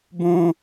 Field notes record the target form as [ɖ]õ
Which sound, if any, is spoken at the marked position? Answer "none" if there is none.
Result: b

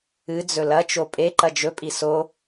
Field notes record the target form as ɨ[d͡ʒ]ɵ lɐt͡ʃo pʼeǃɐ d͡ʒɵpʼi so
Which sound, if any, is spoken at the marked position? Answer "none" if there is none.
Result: d͡z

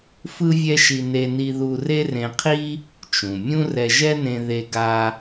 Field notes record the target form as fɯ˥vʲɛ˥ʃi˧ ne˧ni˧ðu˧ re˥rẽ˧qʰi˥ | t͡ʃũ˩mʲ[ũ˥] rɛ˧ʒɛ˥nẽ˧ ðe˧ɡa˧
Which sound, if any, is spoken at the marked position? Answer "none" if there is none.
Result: ũ˥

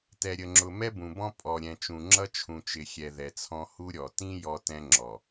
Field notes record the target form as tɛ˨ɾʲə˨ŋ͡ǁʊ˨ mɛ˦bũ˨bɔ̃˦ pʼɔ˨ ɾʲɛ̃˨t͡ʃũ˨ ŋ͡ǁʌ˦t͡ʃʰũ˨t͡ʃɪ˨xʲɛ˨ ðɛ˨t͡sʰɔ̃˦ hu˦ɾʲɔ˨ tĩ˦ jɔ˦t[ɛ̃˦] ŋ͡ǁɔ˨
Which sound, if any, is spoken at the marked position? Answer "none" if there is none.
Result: ɛ̃˦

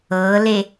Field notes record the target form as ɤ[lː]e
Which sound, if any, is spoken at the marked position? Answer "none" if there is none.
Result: l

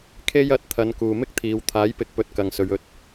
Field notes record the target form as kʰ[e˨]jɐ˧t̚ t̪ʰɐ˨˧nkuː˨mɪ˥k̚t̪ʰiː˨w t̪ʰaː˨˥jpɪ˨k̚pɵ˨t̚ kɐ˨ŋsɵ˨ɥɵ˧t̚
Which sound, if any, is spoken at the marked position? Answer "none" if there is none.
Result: e˥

